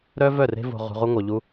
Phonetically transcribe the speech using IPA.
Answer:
ɾ œ˦ v œ˦˨ r e̤˦ v o̤˧ ʁ ṳ˧ ʁ u˦ ŋʷ œ˧ ʎ u˦

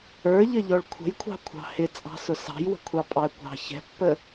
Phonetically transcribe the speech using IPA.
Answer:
ə˞ ʎ ə ʎ ɔ ɭ kʷʰ ə̤ j kʷʰ ɑ̤ kʷʰ ɑ̤ h ɪ t͡sʼ ɑ̤ s ʊ s ɑ̤ j w ə̤ kʷʰ ɑ pʼ ɑ ə̯ kʷ ɑ̤ ç ɛ̤ pː ə

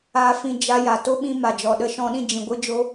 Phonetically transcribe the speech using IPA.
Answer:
aː˧ f ĩ˧ d͡ʒ a˦ j a˨ t o˦ ɓ ĩ˧ m a˨ d͡ʒ ɔ˨ ɗ ə˧ ʃ ɔ̃˧ ɗ ĩ˦˨ d͡ʒ ĩ˨ ɡʷ ɨ˧ d͡ʒ o˦

